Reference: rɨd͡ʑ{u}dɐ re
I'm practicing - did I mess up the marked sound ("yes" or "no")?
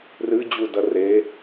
no